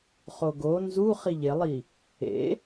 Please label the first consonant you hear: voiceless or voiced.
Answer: voiceless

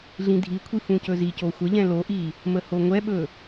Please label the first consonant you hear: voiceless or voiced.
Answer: voiced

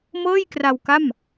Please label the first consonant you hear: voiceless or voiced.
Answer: voiced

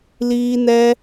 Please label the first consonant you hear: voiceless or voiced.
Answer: voiced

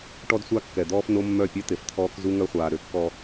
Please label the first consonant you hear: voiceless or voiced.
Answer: voiceless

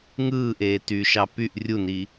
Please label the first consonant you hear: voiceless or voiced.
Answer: voiced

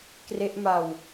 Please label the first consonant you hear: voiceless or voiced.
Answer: voiceless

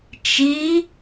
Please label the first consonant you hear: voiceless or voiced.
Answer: voiceless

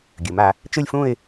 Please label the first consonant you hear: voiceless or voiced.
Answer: voiced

